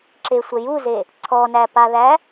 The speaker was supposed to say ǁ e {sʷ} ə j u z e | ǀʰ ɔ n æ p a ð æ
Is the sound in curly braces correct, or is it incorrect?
correct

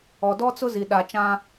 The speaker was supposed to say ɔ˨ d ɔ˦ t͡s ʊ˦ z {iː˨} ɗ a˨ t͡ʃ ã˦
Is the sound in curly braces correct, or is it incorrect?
incorrect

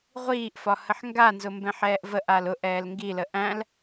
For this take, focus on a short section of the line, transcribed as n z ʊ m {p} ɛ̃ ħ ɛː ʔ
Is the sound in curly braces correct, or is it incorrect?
incorrect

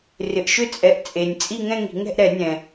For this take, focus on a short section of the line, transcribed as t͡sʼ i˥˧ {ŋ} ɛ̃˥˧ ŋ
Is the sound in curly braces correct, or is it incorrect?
correct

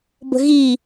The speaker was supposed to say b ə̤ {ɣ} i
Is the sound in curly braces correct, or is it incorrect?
correct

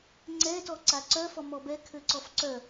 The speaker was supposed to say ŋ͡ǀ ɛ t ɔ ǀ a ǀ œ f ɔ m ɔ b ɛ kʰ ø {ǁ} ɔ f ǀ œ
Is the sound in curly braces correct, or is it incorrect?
incorrect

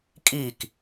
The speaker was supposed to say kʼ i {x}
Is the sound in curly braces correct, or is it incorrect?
incorrect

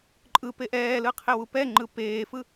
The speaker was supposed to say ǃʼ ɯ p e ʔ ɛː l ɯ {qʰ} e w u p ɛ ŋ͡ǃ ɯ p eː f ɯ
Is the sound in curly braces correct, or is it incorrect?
correct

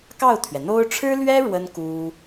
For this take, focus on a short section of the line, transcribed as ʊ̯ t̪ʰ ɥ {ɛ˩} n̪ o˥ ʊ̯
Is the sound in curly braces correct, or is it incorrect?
correct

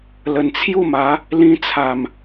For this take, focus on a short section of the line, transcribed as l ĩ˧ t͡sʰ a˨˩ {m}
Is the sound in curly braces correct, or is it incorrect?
correct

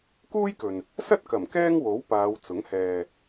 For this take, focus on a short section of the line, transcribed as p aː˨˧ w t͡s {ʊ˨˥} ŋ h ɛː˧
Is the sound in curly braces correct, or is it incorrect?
correct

